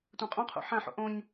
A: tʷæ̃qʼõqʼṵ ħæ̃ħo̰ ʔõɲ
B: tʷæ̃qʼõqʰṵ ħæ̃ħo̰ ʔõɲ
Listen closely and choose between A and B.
B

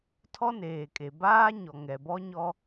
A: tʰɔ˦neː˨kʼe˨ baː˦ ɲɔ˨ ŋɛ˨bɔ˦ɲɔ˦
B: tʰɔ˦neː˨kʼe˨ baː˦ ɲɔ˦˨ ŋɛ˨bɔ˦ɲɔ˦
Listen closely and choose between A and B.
A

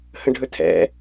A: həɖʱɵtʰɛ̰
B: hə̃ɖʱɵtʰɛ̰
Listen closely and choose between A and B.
B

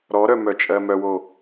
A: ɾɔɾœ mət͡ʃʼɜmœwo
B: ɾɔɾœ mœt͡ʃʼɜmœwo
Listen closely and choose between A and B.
B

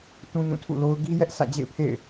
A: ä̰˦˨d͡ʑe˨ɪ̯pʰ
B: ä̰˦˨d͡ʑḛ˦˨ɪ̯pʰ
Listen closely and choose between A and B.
B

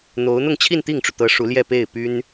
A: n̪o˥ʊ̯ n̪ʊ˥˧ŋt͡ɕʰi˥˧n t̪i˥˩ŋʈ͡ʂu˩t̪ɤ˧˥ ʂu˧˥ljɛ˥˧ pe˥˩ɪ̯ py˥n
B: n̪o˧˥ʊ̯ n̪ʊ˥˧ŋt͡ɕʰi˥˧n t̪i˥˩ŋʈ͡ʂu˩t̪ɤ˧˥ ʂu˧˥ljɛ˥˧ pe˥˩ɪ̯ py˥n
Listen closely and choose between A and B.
B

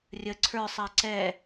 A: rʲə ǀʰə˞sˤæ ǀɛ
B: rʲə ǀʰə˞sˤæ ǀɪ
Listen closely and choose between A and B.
A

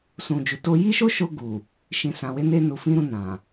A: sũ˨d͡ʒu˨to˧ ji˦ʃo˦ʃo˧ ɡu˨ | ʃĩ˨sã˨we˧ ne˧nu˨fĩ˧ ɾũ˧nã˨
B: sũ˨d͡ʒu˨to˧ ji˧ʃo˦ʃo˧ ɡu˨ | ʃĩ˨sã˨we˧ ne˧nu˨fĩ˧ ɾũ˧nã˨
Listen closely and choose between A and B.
A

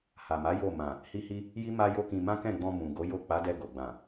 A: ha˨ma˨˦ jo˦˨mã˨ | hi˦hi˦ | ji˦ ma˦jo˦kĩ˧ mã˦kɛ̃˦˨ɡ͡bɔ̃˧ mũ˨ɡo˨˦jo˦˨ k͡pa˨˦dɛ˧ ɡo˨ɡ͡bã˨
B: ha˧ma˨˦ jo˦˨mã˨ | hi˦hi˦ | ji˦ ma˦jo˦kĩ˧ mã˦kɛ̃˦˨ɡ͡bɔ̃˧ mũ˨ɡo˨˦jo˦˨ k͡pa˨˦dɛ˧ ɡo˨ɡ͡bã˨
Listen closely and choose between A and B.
A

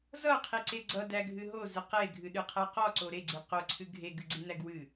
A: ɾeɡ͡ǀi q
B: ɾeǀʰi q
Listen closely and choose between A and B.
A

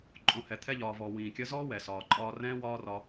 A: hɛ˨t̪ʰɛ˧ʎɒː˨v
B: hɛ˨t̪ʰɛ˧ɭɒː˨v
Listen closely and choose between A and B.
A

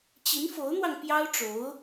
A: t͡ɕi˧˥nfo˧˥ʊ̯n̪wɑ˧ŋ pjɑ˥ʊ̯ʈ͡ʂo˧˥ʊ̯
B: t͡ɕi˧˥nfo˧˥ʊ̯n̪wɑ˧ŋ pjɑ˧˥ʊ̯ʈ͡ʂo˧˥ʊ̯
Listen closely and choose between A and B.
A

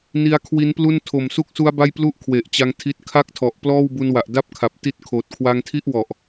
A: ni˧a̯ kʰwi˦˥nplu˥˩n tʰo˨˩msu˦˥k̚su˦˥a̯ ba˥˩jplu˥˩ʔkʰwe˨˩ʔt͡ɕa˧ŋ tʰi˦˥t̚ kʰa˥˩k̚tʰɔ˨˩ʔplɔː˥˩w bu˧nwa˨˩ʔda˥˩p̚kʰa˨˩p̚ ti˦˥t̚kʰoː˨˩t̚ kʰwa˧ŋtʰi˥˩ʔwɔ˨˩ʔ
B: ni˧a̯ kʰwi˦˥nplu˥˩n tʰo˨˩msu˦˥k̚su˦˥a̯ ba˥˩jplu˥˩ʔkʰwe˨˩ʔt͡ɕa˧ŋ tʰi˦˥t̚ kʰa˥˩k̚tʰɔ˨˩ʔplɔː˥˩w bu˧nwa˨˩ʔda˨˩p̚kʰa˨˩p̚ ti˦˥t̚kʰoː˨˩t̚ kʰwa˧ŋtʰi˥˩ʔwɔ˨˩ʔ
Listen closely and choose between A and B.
A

